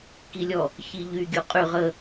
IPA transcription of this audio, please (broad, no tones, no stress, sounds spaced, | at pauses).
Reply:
k i lʲ ɔ | ç i ʎ y ɡʲ u qʼ y ʁ ə